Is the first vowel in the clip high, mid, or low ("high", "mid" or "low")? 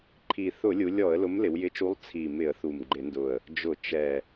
high